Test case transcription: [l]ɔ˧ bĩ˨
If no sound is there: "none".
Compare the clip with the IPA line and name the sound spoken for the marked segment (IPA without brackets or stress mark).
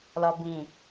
l